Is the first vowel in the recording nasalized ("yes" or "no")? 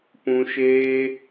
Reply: yes